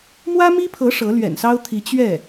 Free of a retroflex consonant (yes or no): no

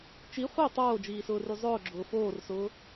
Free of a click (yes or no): no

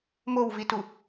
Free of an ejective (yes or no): yes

